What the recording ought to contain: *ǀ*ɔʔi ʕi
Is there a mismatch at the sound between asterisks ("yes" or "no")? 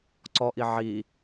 no